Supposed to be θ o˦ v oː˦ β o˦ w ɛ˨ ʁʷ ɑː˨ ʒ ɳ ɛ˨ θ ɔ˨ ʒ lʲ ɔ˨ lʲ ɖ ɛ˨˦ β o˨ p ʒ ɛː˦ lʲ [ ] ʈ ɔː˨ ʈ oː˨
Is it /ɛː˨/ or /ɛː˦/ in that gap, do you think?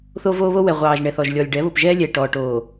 ɛː˨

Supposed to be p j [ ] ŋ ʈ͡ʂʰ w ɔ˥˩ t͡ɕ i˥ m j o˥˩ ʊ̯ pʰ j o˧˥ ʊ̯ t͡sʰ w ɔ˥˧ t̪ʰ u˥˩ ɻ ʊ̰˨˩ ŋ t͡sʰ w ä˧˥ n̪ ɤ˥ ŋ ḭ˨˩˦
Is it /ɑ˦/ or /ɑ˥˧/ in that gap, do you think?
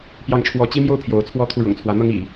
ɑ˥˧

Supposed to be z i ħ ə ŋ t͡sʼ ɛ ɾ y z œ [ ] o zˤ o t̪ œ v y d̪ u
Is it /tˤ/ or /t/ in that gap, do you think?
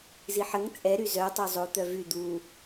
tˤ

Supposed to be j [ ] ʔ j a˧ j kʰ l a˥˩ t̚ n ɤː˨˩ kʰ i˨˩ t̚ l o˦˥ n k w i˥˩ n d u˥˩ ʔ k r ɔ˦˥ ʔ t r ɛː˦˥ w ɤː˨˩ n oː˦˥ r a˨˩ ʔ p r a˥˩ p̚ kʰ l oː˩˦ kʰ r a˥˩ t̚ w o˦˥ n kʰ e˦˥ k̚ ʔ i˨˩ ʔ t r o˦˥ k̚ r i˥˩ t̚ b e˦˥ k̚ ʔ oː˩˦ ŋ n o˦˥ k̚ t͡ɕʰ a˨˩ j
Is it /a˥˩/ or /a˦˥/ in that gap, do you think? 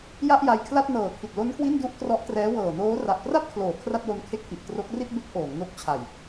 a˥˩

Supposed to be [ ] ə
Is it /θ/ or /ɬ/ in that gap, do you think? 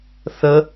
θ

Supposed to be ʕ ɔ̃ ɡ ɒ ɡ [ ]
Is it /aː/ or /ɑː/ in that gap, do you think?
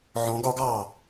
ɑː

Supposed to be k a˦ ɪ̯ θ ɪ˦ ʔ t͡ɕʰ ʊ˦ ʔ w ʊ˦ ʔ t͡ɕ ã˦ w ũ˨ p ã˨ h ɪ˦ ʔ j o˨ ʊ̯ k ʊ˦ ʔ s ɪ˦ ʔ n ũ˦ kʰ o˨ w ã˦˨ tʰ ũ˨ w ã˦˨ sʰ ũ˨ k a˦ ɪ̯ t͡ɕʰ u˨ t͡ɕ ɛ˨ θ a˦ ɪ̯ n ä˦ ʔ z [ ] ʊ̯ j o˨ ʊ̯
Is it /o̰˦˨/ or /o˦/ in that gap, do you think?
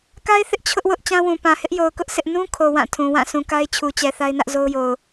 o˦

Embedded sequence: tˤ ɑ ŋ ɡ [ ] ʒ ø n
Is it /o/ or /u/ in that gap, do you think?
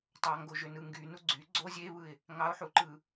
o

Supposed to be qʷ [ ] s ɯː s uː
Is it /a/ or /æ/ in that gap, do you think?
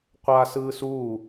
a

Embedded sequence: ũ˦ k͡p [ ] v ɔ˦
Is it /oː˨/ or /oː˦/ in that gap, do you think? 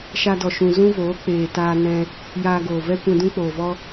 oː˨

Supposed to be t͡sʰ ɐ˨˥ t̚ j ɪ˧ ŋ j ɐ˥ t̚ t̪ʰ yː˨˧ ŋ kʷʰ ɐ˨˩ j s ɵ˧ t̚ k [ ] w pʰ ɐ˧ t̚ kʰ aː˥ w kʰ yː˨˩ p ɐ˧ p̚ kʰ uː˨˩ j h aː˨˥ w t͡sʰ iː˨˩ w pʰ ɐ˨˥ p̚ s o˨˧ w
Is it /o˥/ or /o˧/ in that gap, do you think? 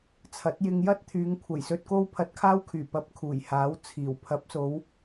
o˥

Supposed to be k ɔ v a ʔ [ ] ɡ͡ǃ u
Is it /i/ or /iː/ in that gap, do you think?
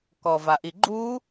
i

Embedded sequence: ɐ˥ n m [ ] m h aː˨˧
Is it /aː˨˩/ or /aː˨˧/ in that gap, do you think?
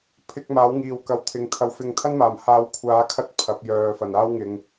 aː˨˩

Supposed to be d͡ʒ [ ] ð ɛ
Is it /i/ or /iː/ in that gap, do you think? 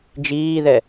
iː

